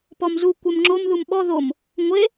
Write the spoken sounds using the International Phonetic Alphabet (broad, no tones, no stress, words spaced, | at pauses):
pɔmzu kʷɛmŋ͡ǁom ðumɓɔ ðom | ŋʷe